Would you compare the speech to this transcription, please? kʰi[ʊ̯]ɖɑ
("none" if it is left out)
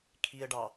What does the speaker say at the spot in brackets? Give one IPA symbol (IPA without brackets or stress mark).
ə̯